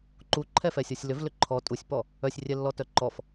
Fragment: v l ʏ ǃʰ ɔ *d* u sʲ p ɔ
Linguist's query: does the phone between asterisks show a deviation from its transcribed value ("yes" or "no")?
yes